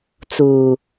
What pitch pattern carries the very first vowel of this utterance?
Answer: low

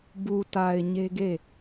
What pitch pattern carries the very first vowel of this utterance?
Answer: low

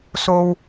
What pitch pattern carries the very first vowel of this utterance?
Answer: high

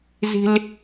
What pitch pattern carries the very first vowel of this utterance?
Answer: high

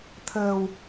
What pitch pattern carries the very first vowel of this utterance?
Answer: low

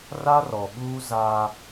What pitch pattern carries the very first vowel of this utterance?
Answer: high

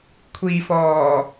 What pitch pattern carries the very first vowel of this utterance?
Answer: low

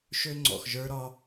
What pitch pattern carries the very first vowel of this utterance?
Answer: high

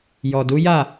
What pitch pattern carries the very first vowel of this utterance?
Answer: low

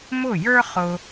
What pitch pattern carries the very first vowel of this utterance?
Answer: falling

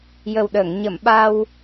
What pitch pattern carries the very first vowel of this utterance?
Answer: low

